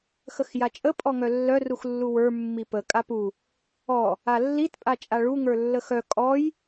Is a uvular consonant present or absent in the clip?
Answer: absent